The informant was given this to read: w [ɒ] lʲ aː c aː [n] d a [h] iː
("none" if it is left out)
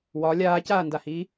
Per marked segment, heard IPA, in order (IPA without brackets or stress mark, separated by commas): ɒ, n, h